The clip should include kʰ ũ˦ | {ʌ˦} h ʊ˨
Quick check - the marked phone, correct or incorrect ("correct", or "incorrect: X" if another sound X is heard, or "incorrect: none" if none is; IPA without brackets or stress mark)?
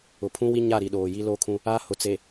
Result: incorrect: a˦